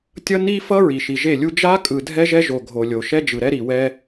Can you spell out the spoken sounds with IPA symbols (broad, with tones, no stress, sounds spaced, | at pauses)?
tʲ ʌ˦ n i˦ f ʌ˦ ɹ i˨ ʃ i˨ ʒ e˦˨ lʲ u˦ d͡ʒ a˦ kʼ ɯ˨ dʱ ɛ˦ ʒ ɛ˦ ʒ o˨ ɡʱ o˨ lʲ o˨ ʃ ɛ˦ d͡ʒ ɯ˨ ɾ ɛ˦ ɾ i˨ w ɛ˦